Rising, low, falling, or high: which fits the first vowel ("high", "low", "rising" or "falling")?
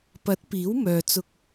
rising